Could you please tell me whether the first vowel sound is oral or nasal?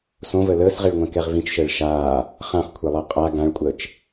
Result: nasal